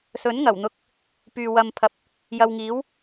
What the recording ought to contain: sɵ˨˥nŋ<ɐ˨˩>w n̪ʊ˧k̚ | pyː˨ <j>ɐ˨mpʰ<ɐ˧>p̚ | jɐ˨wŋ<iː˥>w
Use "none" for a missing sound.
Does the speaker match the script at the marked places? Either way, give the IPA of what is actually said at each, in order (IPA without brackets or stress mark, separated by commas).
ɐ˨˩, w, ɐ˨, iː˨˥